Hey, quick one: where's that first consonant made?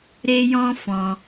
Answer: tongue tip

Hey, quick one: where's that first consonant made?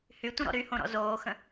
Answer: throat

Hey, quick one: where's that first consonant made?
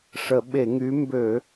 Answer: retroflex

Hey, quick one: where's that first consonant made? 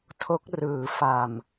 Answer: tongue tip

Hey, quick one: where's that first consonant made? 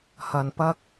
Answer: throat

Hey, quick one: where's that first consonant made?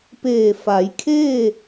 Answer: lips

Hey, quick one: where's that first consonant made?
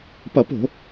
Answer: lips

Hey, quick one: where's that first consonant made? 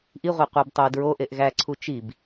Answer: throat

